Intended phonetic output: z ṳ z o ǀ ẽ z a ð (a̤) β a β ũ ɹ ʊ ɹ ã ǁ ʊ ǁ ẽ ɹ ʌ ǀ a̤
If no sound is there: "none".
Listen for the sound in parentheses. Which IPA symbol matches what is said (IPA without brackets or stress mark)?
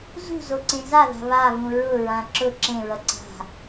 a̤